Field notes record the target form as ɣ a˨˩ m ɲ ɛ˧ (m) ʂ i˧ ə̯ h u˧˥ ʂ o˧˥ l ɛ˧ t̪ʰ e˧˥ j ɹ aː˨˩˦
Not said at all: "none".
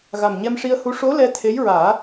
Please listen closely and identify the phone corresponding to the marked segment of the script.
m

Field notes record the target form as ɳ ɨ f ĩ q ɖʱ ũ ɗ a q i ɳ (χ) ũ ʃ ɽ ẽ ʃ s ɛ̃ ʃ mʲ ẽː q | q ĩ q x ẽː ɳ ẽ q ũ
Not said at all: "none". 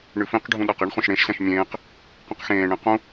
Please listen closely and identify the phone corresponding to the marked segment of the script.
χ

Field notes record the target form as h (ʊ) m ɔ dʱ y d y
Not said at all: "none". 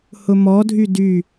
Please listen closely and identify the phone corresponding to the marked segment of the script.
ʊ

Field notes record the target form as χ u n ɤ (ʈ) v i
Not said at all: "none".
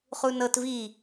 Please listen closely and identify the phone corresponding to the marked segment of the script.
t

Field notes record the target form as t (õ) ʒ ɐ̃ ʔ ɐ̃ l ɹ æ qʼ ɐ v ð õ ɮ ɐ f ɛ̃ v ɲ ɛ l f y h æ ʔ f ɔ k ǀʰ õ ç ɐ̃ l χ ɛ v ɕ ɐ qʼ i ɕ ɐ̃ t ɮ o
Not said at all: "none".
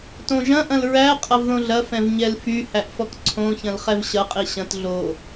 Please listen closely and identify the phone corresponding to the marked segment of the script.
õ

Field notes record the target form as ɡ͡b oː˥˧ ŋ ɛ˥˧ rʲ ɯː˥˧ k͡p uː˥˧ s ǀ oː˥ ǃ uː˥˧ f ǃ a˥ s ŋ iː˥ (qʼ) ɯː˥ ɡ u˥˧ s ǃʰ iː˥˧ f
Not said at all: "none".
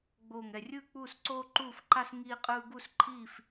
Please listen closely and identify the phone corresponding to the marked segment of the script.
qʼ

